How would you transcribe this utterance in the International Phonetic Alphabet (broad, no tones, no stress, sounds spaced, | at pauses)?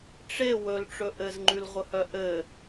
ʈ͡ʂ e w ɵ l ʈ͡ʂ ɵ ʔ ɘ z ŋ͡ǃ ʉ l ʁʷ ə h œ ʔ ɘ